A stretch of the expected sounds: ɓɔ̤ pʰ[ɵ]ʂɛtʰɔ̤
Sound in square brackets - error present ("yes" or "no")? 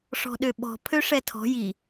yes